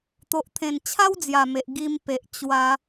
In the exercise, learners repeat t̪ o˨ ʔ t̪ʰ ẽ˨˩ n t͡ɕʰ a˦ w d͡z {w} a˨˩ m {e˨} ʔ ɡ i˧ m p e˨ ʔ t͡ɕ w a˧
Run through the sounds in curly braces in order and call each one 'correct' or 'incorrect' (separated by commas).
incorrect, correct